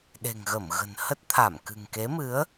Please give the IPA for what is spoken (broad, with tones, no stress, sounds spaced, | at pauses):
ɗ e̤˨˩ ŋ ɣ ə˧˩ m ɣ ə̤˨˩ n h ə˦˥ t̚ t̪ʰ a˧˩ m k ɨ̤˨˩ ŋ k e˨˦ m ɨ˨˦ ə̯